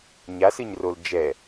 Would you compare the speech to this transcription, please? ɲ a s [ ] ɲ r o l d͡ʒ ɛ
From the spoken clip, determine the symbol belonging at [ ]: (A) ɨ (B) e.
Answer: A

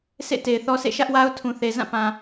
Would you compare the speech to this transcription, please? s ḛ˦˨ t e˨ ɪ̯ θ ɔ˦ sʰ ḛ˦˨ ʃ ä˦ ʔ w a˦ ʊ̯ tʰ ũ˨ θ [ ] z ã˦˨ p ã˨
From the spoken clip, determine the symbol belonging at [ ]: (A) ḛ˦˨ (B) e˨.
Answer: B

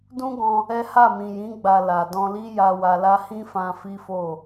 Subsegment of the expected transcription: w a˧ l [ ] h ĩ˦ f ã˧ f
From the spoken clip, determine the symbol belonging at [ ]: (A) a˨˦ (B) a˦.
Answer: B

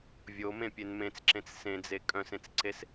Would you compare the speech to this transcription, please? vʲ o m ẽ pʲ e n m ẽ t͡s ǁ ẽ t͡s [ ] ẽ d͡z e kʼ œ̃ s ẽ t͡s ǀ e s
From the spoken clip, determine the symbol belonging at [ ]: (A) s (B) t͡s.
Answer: A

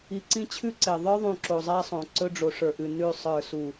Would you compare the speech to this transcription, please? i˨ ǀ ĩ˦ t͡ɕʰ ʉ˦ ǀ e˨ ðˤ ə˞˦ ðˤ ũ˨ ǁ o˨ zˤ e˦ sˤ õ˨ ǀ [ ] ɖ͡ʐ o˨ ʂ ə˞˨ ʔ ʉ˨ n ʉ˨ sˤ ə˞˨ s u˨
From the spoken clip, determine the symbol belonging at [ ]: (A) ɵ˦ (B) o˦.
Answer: A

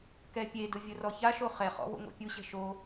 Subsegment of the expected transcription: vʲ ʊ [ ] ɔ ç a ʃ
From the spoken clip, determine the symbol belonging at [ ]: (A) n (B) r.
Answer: B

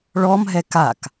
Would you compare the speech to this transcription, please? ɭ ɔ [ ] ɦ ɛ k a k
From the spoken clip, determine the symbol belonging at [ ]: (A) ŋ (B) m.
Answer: B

